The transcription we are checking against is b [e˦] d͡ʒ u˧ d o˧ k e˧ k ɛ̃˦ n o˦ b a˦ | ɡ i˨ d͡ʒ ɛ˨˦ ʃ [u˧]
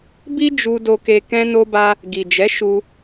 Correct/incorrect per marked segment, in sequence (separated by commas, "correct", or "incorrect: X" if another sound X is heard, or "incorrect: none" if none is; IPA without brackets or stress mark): incorrect: i˦, correct